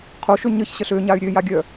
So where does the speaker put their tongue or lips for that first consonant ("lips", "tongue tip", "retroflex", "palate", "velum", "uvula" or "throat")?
uvula